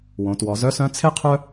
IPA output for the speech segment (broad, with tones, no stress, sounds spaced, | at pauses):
w õ˩˧ t w ɔ˩˧ z œ˧˥ s œ̃˧˥ t͡sʰ e˥ qʰ œ˥